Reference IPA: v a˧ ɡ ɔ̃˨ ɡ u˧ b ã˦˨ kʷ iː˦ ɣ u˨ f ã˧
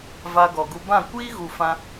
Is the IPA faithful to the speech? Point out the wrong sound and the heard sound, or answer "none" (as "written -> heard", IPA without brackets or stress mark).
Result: ɔ̃˨ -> ɔ˨